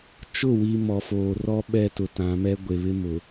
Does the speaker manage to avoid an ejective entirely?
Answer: yes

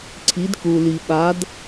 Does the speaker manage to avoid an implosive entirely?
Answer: no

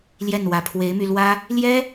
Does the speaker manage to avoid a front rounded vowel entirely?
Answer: no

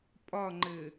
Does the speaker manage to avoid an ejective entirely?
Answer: no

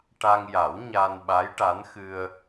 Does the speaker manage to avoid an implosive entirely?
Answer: no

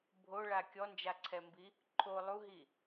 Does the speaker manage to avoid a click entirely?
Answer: no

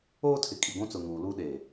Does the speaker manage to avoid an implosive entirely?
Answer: no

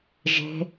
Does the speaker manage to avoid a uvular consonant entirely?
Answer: yes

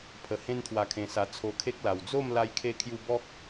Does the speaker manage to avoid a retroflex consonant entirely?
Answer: yes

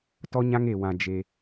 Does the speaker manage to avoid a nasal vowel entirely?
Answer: no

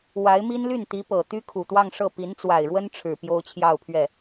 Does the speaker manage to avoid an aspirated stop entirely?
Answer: no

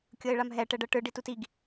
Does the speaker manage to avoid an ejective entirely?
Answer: yes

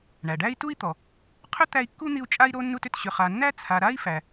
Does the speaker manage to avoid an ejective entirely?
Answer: no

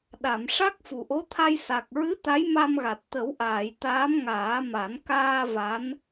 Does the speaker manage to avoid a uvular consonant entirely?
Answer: yes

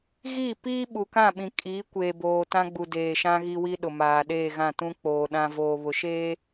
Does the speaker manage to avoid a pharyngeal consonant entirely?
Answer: yes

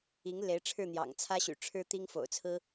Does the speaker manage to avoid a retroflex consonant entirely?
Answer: no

